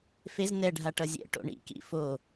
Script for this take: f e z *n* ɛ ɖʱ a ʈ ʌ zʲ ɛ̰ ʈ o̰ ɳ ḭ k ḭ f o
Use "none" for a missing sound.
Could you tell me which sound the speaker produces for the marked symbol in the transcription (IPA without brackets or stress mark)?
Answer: n